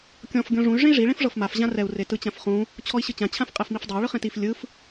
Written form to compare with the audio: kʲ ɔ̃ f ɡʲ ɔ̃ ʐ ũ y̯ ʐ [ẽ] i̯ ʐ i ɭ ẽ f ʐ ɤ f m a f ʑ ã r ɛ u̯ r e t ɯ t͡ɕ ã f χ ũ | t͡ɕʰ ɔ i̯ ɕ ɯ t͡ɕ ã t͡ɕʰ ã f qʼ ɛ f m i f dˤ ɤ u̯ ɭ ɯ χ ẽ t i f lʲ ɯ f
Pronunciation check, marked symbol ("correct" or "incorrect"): correct